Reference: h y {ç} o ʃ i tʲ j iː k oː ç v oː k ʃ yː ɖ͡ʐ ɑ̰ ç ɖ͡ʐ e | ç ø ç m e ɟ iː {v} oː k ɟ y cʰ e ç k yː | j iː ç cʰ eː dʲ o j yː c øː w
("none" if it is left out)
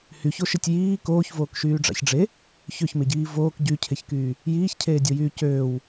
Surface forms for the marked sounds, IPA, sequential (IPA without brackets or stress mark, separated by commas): ç, v